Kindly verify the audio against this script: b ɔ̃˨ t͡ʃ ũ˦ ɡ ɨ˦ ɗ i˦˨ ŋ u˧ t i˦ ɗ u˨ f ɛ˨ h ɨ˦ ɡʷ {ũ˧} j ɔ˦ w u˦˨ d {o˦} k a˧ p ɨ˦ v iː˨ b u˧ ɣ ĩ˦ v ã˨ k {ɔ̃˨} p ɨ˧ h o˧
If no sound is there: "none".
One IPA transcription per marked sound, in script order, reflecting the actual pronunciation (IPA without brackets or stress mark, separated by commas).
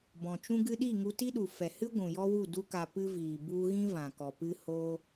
ũ˨, u˦, ɔ˨